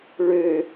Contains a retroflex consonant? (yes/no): yes